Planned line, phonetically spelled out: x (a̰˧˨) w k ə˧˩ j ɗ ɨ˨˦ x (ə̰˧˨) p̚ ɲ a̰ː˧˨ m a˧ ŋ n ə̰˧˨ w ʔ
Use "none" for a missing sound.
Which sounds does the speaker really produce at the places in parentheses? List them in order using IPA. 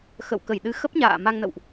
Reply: ə̰˧˨, ə˦˥

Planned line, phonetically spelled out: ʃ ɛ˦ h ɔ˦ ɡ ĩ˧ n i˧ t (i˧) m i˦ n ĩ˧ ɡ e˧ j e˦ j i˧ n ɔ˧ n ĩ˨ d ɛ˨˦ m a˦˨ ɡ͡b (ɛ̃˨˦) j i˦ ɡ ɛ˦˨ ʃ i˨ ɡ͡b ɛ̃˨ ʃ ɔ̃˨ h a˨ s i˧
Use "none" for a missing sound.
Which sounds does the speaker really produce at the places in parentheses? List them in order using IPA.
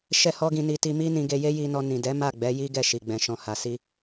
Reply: i˧, ɛ˨˦

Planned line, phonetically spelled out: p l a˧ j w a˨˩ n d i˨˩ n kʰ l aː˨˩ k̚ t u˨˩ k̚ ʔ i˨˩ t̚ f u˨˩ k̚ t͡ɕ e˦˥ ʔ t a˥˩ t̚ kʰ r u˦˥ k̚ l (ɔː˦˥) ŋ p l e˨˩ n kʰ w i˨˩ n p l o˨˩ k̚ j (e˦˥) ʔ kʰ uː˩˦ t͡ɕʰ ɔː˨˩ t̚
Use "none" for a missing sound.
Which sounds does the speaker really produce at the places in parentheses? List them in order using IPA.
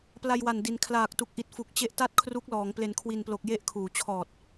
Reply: ɔː˩˦, e˦˥

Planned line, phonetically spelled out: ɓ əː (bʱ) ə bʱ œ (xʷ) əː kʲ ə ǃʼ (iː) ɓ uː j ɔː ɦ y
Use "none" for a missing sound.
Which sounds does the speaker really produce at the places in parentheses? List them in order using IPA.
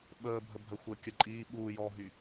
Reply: bʱ, xʷ, iː

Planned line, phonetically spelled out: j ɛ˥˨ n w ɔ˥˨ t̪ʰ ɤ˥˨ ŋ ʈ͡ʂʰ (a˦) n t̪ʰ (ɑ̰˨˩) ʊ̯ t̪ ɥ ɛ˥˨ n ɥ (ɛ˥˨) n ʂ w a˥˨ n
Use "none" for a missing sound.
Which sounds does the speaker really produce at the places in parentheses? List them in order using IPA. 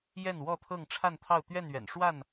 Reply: a˥˨, ɑ˥˨, ɛ̰˨˩

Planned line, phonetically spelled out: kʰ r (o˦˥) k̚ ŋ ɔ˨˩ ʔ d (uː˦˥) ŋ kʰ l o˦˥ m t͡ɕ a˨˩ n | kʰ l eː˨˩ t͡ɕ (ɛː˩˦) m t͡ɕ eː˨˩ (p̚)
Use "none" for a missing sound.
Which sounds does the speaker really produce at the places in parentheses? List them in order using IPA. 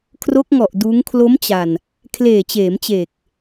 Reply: o˦˥, uː˦˥, eː˩˦, k̚

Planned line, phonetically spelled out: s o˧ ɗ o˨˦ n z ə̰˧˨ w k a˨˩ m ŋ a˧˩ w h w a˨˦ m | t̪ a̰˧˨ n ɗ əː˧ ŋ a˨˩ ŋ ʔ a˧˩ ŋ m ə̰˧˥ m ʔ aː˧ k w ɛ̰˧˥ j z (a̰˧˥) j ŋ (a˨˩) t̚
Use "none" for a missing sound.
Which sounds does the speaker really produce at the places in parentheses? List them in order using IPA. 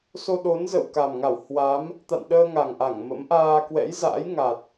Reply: a̰ː˧˥, a˨˩

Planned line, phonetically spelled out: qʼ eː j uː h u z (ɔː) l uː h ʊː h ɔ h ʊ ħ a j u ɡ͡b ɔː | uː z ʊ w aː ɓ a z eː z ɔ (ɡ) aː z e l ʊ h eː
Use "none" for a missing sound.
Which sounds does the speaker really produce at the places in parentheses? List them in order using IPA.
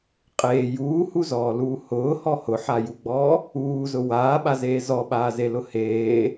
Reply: ɔː, ɓ

